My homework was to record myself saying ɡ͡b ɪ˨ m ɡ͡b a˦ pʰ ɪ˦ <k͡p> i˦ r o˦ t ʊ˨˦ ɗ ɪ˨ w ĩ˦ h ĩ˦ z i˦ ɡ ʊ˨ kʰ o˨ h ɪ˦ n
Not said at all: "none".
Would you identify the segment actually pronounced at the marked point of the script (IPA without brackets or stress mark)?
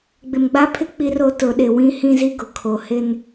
k͡p